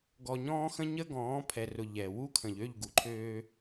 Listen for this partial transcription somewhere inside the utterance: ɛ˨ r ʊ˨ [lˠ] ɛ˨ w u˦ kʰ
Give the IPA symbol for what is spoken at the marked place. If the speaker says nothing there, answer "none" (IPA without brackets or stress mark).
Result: ʎ